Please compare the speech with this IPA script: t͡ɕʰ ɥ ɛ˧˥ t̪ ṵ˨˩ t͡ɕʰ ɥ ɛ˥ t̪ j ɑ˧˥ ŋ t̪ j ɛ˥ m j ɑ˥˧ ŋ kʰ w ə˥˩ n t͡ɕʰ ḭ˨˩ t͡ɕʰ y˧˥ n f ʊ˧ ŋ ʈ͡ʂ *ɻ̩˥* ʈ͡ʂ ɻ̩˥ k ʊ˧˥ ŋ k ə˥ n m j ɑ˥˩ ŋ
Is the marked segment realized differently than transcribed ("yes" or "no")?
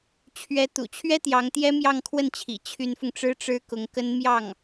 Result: no